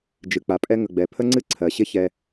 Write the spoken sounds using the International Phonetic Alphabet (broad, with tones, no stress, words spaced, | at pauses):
d͡ʒɨ˨k͡pa˨pʼɛ˦ ŋə˨ɡ͡bɛ˨ pʰə˦ŋ͡ǀɨ˦ǀʰɜ˨ɕɪ˦ çɛ˦